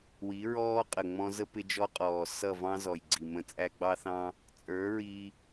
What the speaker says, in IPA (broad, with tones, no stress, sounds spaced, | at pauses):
w i˨˦ ɹ ɔː˦ qʼ ə˨ ŋ͡m ɔ̃˧ z ə˦ p ɪ˧ d͡ʒ ɔ˧ qʼ ɔː˨ s ʌ˦˨ v ɑ̃˦ z ɔ˨ j ɡ͡ǀ i˨ m ə̃˧ t͡sʼ æ˧ ɡ͡b ɑ˦ θ ɑ̃˦ | t͡sʼ ə˞˨˦ ɹ i˧